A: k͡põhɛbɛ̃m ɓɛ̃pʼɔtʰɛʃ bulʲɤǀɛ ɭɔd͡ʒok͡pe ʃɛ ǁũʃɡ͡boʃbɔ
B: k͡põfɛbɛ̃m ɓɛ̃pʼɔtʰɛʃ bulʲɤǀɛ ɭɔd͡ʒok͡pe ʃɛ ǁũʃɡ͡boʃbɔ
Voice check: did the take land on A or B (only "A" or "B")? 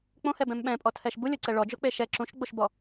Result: A